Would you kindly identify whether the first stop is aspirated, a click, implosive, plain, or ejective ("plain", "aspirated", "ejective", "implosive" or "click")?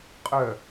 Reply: ejective